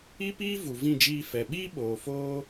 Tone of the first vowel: high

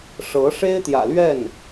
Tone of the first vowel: rising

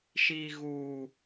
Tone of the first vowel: low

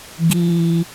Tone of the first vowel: high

